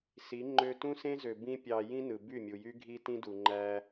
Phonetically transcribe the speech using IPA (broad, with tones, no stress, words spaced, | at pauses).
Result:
si˨˦ ŋ͡ǃø˧tũ˦sẽ˦zø˨ bĩ˦pʲɑ˧ jĩ˦ nɯ˨by˦˨mʲu˨jy˦ ɡʱi˦tĩ˦du˨ ŋ͡ǃæ˧